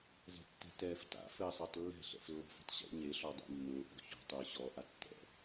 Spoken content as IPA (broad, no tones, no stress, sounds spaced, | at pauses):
z ɛ̤ tː ɛ̤ t ɛː f t a̰ f ɘː sˤ ʊː tˤ lː ɛ̤ ɬ ɛ̰ f lː ɔ̤ f ɛ̤ tˤ ɕ ḛ ɲ e ɬ ɔ dˤ ḛ mː ʊː ʔ ɔ̤ ç ɔ̤ tˤ ʊː ɕ ɔ ʔ a tː ɛ̰